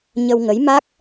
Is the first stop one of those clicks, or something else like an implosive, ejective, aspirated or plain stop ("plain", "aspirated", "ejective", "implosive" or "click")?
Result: plain